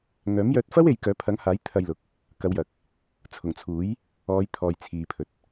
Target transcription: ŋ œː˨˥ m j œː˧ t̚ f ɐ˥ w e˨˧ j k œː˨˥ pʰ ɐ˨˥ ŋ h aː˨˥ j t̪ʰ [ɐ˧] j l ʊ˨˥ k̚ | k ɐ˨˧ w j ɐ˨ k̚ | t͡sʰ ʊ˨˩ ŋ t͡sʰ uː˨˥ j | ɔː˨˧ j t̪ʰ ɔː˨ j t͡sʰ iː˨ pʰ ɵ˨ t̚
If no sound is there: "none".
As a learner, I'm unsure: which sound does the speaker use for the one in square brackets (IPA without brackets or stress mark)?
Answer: ɐ˧